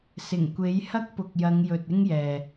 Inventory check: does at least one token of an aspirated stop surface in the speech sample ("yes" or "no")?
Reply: no